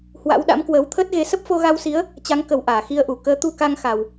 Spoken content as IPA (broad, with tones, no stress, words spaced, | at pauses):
hwa̰˧˥wɗa̰˧˥m kwəː˨˦wt̪ʰəː˦˥t̚ɣe˨˦ sə˦˥p̚fo˧ɣa˧wsi˨˦ə̯ | t͡ɕa˨˦ŋkə˨˩w ʔaː˧˩xi˧ə̯ʔu˧˩ kəː˨˦ t̪u˧ka˧ŋxa˨˩w